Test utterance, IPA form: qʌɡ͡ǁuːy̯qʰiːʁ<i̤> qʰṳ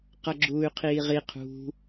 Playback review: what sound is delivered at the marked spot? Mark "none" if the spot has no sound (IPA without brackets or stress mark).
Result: i